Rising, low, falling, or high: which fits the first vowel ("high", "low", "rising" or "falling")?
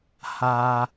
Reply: low